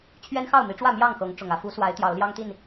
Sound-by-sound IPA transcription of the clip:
t͡ɕʰɥɛ˦nxɑ˥˨ʊ̯mi˨˦ʈ͡ʂwä˥˨ mjɑ˥˨ŋxɤ˨˦ŋ ʈ͡ʂʊ˨˩ŋä˥˨ fu˨˦swa˨˦ɪ̯ t̪jɑ˨˦ʊ̯ljɑ˦ŋt̪i˥˨n

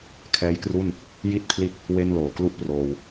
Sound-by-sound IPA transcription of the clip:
kʰɛː˦˥jkru˥˩n | ji˥˩t̚pʰli˦˥t̚ | we˥˩n loː˨˩klu˥˩ʔ proː˧w

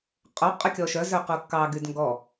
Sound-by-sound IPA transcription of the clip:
qʼo qʼʉkʲɔʃœ zøqukːɑ ɡydŋɡɔ

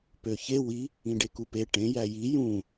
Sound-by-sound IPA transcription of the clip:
pøçe wi | ĩɖekupe ʈẽ jæji jũ

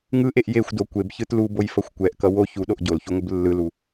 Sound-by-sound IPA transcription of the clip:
ŋɯʔeʔ jexʷdo kʷebçɯt lubojfʌxʷ kʷɛʔkʌ wo çuɗoʔ ɟolçuŋʷɯb lːɯlu

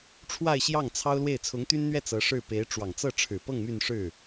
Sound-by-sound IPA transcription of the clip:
ʈ͡ʂʰwa˥˧ɪ̯ɕjɑ˥˩ŋ t͡sʰɑ˥ʊ̯lwe˥˩ɪ̯ t͡sʰʊ˧˥ŋt̪y˥nn̪ɥɛ˥˩ t͡sɤ˧˥ʂɻ̩˥˩ pe˧˥ɪ̯ ʈ͡ʂwɑ˨˩ŋt͡sɤ˥˩ʈ͡ʂʰɻ̩˨˩pɤ˥˧ŋ my˥˧nʂɻ̩˥˩

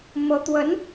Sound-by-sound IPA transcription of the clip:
mɤ˧˥t̪wə˧˥n

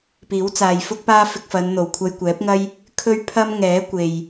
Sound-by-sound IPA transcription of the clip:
piː˨˥wt͡saː˨jfʊ˥k̚paː˥ fɪ˧k̚fɐ˨˧nn̪o˨˩w kʷʰɐ˧jkʷɛː˨˥p̚ŋɐ˥j | kʰɵ˥ɥpʰɐ˥m ŋɛː˨˥kʷe˨j

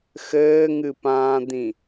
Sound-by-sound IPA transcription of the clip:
xɘːŋɨpãːd̪ĩ

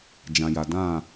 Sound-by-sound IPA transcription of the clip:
d͡ʒã˨ja˨dã˦˨

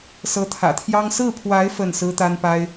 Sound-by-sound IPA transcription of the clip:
sɤ˧˥t̪ʰä̰˨˩t̪ʰjɑ˥ŋ sɹ̩˥˩pʰwa˧˥ɪ̯ fə˥˩nsɹ̩˥ t̪a˥npa˥ɪ̯

